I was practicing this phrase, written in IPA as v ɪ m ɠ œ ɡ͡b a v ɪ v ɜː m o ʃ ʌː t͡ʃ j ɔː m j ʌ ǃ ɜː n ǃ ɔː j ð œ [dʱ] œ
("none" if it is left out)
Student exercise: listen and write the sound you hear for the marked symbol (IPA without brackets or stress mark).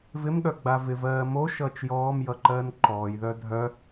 dʱ